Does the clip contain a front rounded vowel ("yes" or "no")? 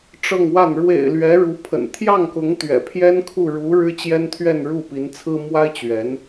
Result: no